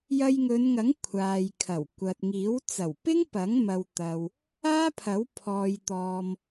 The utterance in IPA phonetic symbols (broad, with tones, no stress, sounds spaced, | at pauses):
j ɐ˧ j ŋ ɵ˨˧ n ŋ ɐ˨˥ ŋ kʷʰ aː˨ j kʰ ɐ˨˩ w kʷ ɐ˨ t̚ ŋ iː˨˥ w t͡s ɐ˨˩ w p ɪ˥ ŋ p ɐ˨˥ ŋ m ɐ˧ w t̪ ɐ˨ w | aː˥ pʰ ɐ˨˥ w pʰ ɔː˨ j t̪ ɔː˨ m